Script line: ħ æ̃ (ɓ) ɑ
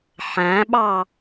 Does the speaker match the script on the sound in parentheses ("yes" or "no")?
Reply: yes